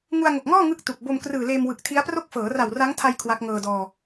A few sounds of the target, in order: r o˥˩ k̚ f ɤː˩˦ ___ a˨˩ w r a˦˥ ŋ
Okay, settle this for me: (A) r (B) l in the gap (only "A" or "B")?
A